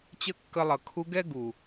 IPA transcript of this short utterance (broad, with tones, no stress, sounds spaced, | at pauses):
t͡ɕ ə˦ kː ə˧ lˠ ʌ˨ kʰ u˧ ɡ ɛ˦ ɡ u˨